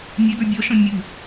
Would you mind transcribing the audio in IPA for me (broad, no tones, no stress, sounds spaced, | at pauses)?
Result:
nʲ ɛ ɡ ə˞ bʲ ɔ ʃ ɔ̃ mʲ u